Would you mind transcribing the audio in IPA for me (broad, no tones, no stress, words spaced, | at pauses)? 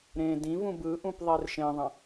ɾẽ dĩvũ bɯʔũp ðˤerʃẽðˤɐ̃